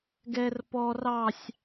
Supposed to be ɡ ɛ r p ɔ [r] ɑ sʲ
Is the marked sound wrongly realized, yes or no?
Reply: no